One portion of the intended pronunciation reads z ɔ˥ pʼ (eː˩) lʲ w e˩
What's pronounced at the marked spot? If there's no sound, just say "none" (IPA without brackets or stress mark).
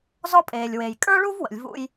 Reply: eː˩